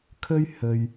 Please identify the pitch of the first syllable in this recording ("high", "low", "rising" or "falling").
high